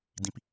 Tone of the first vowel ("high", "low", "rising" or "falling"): high